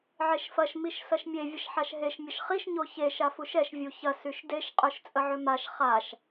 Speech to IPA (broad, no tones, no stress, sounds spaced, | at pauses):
ʕ e ʃ f ɐ ʃ m i ʃ s ɐ ʃ mʲ e vʲ ə ʃ ħ a ʃ ɦ e ʃ mʲ ə ʃ χ i ʃ ɲ o ç e ʃ a f u ʃ ɛ ʃ vʲ u ç ɐ s y ʃ d e ʃ qʼ œ ʃ t͡sʼ ə ʕ ʏ m a ʃ χ a ʃ